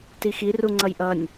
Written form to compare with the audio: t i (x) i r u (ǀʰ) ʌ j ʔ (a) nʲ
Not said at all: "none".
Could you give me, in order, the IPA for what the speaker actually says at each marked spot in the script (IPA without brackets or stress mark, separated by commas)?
x, ŋ͡ǀ, ʌ